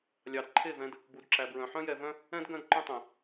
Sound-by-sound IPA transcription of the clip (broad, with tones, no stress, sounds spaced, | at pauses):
lʲ ɑ˨ d ǃʰ e˦˨ v ɛ̃˧ d | b u˨ d ǁ æ˨ b ɹ œ̃˨ ħ œ̃˦ j ɛ˧ v œ̃˦ | ɛ̃˦ d ɡ œ̃˦ d ǃ œ̃˦ tˤ ɛ̃˨